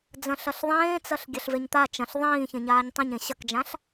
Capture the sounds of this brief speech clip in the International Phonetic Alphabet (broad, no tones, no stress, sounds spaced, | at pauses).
d͡z ɐ̃ ɬ ɐ ɬ ðˤ ẽː t͡s ɐ ɬ ɡʲ ɐ ɬ v e ɲ t̪ a t͡ʃ ɐ̃ ɬ ðˤ ĩː ç ẽ ɲ aː ɲ tˤ ẽ ɲ ẽ ɕ ɐ k d͡ʒ ã ɬ